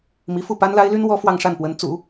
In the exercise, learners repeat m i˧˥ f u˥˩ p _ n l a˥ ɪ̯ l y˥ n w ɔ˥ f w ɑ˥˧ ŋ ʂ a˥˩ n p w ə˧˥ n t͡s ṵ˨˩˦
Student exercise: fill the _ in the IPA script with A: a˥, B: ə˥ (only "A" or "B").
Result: A